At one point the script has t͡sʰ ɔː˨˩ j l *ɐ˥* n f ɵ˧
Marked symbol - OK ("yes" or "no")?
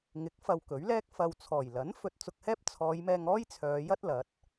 no